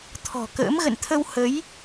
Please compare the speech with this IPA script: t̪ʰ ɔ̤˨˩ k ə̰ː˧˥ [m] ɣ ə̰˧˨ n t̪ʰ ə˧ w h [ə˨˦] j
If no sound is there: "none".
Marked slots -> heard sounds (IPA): m, ə˨˦

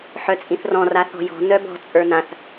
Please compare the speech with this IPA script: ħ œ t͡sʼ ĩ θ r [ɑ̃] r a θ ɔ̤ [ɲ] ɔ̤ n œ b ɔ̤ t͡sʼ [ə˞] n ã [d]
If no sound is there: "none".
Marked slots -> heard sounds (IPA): ɔ̃, j, ə˞, θ

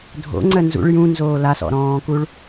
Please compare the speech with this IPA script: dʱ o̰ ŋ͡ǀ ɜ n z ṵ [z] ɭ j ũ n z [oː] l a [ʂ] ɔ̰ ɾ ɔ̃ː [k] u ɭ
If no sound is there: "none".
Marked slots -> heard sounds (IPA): none, oː, s, k

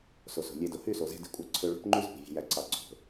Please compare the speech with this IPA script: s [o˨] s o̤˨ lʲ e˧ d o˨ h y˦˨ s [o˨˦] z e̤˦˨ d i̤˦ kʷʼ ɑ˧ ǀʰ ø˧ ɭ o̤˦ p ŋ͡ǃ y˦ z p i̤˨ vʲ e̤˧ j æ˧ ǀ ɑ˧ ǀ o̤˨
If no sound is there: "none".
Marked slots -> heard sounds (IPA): o˨, o˨

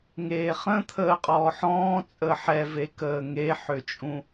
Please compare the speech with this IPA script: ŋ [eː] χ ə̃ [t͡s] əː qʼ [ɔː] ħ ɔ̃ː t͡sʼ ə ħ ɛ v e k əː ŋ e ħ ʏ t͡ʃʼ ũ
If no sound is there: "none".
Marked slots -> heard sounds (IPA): eː, t̪ʰ, ɔː

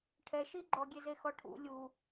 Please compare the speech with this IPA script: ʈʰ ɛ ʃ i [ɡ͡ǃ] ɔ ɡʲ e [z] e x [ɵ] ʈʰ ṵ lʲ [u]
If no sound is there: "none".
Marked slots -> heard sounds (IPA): ɡ͡ǃ, z, ɔ, u

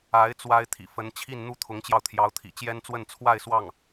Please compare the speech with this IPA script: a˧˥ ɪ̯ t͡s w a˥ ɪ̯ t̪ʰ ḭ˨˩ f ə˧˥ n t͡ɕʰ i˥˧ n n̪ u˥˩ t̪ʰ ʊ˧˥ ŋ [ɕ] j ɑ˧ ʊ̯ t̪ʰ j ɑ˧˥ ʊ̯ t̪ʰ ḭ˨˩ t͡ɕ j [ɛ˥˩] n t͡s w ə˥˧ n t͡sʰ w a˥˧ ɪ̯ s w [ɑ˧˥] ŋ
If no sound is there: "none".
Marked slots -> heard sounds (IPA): t͡ɕ, ɛ˥, ɑ˥˩

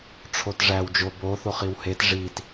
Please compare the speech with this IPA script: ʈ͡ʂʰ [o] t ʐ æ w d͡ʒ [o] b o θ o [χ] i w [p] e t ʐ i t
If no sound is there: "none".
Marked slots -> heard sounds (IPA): o, o, χ, h

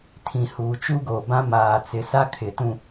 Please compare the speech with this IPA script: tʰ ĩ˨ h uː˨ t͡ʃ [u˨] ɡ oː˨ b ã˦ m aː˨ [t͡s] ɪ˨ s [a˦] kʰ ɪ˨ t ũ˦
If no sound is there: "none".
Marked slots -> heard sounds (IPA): u˦, t͡s, a˦

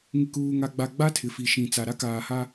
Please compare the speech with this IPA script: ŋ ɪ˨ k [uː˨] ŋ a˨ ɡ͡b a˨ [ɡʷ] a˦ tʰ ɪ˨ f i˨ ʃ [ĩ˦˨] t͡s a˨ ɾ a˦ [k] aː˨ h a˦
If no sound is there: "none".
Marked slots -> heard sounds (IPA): uː˨, ɡ͡b, ĩ˨, k

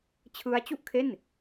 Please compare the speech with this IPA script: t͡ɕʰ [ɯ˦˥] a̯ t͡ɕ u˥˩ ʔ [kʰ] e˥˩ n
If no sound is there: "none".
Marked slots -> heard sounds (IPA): ɯ˦˥, kʰ

